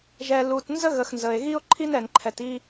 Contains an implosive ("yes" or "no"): no